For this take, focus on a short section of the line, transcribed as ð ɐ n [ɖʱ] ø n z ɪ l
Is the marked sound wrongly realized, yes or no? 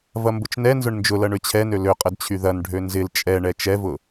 no